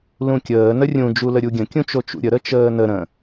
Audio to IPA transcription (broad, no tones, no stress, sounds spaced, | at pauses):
l ũ kʲ əː n ə rʲ ũ d͡ʒ u l ə ɾʲ u ɡʲ ə̃ kʲ ũ t͡ʃ o t͡ʃ ṵ ɾʲ ə ɾ ə t͡ʃ əː n ə ɾ ə̃